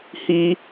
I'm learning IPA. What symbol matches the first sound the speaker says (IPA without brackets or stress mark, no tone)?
h